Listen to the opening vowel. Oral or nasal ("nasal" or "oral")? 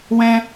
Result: nasal